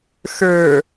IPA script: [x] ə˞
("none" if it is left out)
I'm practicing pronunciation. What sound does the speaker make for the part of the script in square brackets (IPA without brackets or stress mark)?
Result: x